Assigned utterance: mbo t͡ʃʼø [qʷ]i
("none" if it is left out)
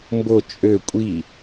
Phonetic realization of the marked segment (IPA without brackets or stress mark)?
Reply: kʷʼ